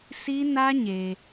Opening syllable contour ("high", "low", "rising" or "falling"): high